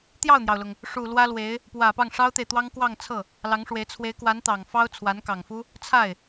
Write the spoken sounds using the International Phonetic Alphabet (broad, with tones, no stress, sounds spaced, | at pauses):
t̪ j ɑ˥˩ ʊ̯ n̪ j ɑ˩ ʊ̯ l ʊ˩ ŋ | ʂ u˨˩ l w ä˥ l w e˧˥ ɪ̯ | p w ä˨˩ p ɑ˥˩ ŋ ʂ ɑ˥ ʊ̯ t̪ e˨ ɪ̯ t̪ w ɑ˥ ŋ k w ɑ˥˧ ŋ t͡sʰ ɤ˥˩ | l ɑ˧˥ ŋ ʂ w e˧˥ ɪ̯ t͡sʰ w e˧˥ ɪ̯ k w a˧˥ n t̪ ɑ˨˩ ŋ f ɑ˥ ʊ̯ t͡sʰ w a˧˥ n k ɑ˨˩ ŋ f u˥ | t͡sʰ a˥˩ ɪ̯